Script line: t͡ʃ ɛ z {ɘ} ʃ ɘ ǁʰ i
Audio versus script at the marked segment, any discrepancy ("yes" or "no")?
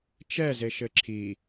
yes